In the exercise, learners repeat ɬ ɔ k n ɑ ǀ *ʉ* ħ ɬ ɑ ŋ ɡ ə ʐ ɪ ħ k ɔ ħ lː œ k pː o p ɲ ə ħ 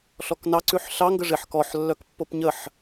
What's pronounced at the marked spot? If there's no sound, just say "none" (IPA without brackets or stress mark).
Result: ʉ